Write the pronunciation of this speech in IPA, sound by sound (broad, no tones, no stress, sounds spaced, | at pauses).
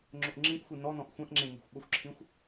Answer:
ŋ͡ǁ ʊ ʔ ŋ͡ǁ ĩ ʔ xʷ i n ɔ n ɔ̃ ʔ xʷ ɛ̃ ʔ ŋ͡ǁ ẽ n e̤ xʷ ɓ ʊ xʷ ǁʰ ĩ xʷ